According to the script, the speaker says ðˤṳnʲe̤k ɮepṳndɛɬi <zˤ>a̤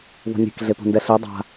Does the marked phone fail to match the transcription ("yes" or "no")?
yes